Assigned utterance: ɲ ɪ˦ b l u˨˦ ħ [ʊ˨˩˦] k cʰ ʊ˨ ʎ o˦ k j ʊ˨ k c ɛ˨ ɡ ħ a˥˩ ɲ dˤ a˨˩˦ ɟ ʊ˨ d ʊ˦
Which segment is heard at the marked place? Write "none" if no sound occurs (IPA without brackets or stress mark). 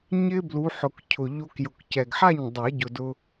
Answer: ʊ˨˩˦